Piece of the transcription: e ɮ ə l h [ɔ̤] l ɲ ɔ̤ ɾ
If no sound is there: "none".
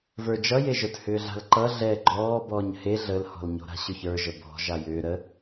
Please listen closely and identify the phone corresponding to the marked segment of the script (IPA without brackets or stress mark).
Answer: ɔ̤